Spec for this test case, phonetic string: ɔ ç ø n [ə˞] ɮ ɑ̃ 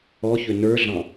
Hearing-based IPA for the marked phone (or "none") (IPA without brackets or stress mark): ə˞